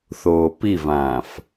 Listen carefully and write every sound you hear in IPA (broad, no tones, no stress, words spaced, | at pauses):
θoːpivãːf